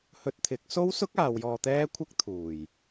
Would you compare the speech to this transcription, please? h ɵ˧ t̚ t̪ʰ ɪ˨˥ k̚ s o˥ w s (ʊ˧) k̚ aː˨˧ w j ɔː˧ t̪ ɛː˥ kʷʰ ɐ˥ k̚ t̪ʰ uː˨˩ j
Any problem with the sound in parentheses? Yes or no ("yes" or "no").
yes